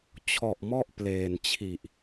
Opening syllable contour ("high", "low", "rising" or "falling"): low